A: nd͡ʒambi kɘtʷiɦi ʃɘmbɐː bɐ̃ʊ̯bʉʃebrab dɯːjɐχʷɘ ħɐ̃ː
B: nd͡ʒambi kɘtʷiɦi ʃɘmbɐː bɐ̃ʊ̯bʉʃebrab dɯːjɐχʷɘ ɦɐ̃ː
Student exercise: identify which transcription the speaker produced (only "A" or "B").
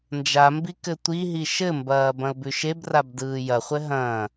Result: B